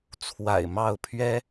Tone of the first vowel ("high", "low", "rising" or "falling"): low